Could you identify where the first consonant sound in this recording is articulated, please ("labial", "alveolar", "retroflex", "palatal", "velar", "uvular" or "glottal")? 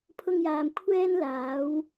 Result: labial